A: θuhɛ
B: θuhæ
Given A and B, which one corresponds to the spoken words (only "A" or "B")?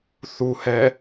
A